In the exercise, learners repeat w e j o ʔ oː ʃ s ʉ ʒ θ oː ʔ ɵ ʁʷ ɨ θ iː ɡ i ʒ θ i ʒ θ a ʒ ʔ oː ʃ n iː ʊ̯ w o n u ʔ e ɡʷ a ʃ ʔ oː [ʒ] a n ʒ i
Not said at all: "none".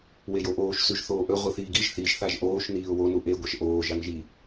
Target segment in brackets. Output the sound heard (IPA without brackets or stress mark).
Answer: ʒ